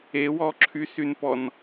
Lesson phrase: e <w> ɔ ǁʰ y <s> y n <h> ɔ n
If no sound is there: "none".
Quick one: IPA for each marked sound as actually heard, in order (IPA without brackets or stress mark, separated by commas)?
w, s, p